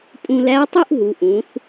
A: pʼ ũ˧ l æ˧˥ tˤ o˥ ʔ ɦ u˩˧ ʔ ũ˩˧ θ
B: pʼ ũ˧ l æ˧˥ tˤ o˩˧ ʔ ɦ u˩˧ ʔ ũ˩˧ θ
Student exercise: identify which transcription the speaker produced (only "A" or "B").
A